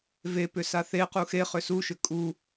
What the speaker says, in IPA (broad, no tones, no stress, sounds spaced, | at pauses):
v e p ʏ s a θ e q u x e χ ʏ s u ʃ ʏ kʼ u